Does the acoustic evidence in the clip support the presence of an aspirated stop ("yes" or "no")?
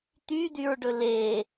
no